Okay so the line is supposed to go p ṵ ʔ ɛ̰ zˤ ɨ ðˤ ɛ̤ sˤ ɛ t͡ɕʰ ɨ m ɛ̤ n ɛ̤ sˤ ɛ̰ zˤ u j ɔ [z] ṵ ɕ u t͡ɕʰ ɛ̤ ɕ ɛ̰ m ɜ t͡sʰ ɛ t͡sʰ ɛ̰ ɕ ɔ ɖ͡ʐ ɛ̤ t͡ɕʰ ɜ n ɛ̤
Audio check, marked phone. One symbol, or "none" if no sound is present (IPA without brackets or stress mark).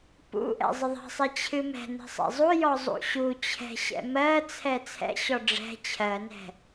zˤ